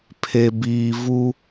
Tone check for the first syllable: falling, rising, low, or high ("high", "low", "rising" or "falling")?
low